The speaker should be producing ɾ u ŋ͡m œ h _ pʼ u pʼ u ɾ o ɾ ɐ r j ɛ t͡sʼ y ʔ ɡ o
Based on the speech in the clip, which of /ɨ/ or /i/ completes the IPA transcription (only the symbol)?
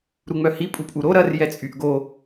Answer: i